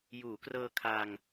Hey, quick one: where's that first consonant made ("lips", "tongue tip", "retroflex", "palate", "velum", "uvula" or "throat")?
palate